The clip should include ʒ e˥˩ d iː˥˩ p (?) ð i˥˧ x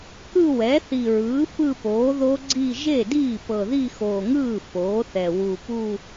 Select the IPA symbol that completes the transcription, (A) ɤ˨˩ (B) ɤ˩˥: A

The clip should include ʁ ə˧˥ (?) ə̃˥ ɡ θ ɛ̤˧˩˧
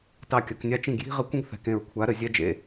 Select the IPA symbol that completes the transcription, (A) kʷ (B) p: A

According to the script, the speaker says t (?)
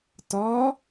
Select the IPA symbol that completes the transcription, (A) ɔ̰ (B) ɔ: B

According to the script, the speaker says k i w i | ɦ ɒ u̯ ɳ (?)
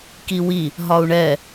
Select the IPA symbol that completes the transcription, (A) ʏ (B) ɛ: B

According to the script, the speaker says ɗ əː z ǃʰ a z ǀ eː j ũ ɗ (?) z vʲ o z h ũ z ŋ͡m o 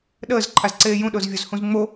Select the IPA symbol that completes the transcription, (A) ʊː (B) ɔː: A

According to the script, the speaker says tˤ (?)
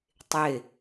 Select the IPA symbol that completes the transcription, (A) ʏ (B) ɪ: B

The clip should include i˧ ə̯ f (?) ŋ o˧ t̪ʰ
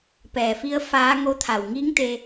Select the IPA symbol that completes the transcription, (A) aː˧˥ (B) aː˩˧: A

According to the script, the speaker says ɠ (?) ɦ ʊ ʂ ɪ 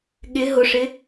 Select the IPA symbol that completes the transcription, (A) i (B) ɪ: B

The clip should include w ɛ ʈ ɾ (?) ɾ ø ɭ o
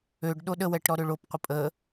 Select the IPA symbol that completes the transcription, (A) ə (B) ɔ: B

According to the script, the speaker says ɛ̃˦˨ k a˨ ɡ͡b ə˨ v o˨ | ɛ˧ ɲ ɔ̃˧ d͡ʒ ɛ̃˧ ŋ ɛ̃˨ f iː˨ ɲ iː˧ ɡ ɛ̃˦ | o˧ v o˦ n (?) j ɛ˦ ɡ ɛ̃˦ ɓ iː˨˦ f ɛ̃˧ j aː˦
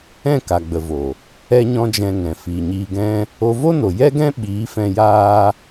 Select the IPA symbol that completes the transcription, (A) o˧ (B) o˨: B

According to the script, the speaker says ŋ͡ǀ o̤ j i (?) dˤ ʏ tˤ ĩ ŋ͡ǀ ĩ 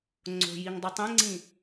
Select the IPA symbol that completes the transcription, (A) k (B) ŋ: B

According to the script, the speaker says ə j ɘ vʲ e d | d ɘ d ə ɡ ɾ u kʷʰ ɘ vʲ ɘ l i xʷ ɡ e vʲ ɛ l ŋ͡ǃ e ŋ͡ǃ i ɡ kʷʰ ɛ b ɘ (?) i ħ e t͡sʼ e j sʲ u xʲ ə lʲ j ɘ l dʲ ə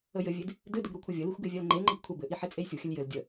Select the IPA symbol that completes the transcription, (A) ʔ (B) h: A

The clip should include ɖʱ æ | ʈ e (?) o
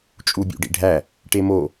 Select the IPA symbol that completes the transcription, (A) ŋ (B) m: B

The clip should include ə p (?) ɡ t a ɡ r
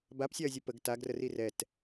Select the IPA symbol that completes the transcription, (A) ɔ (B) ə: B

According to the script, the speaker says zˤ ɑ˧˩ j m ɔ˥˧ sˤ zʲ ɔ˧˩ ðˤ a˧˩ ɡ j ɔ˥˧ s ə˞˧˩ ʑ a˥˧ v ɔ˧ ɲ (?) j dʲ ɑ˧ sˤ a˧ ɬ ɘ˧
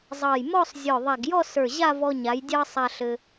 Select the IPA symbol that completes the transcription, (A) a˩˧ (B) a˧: A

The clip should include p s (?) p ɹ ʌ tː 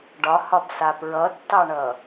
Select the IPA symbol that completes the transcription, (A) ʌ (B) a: B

